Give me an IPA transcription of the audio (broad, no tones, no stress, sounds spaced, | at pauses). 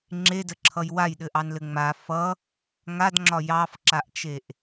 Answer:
ŋ͡ǁ e d ə ǁʰ ʌ j w a j ɗ ɘ ʔ ɑ n l ɘ ŋ͡m a f ʌ | ŋ a d ŋ͡ǁ ɒ j ɑ f ǁ a ʔ t͡ʃ e ʔ